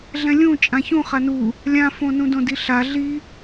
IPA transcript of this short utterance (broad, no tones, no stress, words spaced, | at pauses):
ɮɛ̃lʲũ t͡ʃʼãçũ χanu | lʲãfõnũ dõdiɬa ɮi